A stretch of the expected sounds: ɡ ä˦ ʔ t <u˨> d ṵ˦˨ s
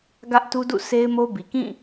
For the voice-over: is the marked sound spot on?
no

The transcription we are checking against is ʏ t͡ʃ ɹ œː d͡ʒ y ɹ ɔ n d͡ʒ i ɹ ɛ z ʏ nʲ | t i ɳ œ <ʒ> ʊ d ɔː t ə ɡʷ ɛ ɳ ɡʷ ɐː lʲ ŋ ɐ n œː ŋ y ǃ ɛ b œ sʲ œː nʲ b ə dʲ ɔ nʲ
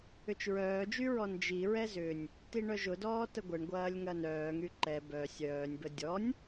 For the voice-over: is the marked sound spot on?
yes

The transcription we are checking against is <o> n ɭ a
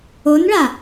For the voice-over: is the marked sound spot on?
yes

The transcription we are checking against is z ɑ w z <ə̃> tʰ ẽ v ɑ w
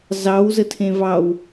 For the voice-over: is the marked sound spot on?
no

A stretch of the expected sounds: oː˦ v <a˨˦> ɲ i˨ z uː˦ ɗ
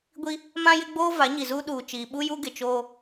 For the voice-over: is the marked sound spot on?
yes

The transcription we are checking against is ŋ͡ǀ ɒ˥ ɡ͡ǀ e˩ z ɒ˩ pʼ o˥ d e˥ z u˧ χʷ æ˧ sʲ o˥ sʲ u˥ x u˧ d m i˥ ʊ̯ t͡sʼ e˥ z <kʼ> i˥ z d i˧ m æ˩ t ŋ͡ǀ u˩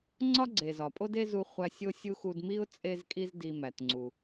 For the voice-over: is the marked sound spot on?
yes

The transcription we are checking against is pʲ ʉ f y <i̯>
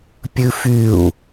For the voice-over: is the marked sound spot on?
no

